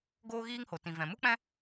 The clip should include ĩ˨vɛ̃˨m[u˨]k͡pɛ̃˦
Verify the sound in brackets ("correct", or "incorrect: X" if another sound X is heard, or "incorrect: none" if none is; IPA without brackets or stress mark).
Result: incorrect: u˦